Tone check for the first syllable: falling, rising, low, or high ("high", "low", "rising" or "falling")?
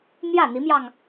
falling